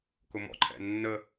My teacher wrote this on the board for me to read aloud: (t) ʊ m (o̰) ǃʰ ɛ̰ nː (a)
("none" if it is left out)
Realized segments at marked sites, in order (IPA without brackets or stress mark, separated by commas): k, ɔ̰, ə